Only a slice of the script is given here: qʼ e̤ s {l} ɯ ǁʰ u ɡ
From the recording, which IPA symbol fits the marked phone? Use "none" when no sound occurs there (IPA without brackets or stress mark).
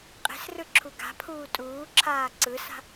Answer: r